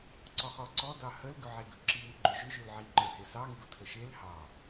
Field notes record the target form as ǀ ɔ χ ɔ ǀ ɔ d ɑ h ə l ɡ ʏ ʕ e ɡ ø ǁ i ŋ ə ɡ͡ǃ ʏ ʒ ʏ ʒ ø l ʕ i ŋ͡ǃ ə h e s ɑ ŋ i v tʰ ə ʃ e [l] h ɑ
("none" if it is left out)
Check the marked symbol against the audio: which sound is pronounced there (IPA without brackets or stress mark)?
l